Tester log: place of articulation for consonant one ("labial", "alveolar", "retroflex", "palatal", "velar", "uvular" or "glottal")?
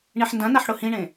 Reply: retroflex